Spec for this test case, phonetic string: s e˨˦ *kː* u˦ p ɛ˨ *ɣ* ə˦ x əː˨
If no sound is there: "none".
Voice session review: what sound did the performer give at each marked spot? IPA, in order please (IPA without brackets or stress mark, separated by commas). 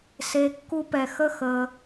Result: kː, x